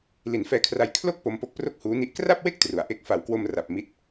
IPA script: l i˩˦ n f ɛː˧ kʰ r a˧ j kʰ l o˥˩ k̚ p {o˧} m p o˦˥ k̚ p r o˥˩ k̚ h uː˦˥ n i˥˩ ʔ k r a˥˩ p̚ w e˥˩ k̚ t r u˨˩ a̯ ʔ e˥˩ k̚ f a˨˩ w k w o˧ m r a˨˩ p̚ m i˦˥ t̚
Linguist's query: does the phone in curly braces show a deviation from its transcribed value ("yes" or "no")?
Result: no